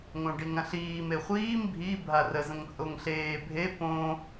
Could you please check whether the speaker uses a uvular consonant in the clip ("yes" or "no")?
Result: yes